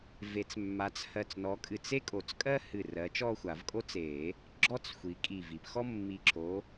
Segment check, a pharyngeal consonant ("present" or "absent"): absent